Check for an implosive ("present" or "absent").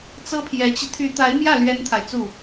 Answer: absent